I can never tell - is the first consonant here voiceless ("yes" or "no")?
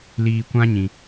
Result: no